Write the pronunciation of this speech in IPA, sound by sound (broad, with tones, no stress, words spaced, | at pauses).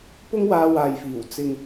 pʊ˥ŋwaː˧waː˨jfiː˨˩w t͡sɪ˨ŋ